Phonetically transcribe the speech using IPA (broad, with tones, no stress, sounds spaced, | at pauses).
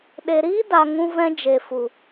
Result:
ɗ e˨ ɾ iː˦ d a˨ ŋ ũ˧ v ɛ̃˧ d͡ʒ e˨ f u˨